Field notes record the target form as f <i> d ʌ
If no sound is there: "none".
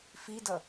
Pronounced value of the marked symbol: i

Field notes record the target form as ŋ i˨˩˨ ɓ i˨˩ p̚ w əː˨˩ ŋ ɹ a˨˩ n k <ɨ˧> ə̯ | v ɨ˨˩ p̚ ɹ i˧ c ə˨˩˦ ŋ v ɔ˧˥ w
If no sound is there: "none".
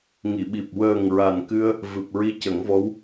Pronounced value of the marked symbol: ɨ˧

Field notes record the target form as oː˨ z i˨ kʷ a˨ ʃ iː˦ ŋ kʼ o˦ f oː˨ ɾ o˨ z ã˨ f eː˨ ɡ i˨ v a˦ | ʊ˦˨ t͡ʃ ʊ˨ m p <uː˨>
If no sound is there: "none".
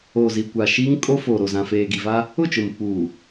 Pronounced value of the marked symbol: uː˨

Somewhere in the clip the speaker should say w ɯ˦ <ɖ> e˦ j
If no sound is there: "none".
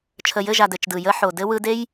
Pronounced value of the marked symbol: d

